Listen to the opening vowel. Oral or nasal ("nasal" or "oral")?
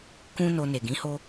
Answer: nasal